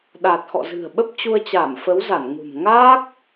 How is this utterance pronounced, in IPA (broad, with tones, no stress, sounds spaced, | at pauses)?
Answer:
ɗ aː˨˩ t̚ x ɔ̰˧˨ z ɨ̤˨˩ ə̯ ɓ ə˦˥ p̚ t͡ɕ u˧ ə̯ t͡ɕ aː˧˩ m f ə˨˦ w z a˧˩ n ŋ ṳ˨˩ m ŋ aː˦˥ k̚